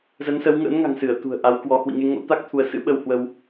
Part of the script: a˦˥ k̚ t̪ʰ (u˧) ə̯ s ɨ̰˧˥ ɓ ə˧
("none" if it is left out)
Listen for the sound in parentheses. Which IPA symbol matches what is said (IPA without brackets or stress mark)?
u˧